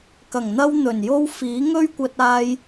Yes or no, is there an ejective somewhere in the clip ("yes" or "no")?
no